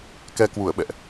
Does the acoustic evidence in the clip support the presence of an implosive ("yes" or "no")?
yes